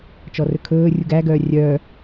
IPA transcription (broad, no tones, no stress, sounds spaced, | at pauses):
t͡ʃ ɔ r ɵ kʰ ɵː rʲ u ɡ æ ɡ œː rʲ œː